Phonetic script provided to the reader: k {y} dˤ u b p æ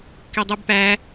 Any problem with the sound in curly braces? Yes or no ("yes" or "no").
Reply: yes